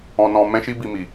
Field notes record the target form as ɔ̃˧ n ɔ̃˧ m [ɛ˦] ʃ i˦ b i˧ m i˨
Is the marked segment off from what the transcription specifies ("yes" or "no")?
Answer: yes